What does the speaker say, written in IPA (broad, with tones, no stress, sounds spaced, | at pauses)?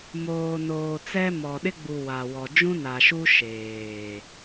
m oː˨ n oː˨ t͡s ɛ˦ m ɔ˨ ɗ ɪ˦ ɡ͡b u˨ w a˨ w ɔ˨ d͡ʒ ũ˦ n a˨ ʃ u˦ ʃ eː˨